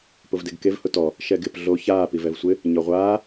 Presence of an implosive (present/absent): absent